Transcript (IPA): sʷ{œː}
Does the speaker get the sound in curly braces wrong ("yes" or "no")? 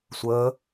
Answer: yes